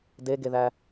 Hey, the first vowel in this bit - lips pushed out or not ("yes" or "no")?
no